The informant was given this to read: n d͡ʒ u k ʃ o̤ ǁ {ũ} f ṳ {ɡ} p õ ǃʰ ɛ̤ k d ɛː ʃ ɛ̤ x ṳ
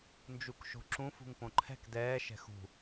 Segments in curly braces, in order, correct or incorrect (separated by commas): correct, incorrect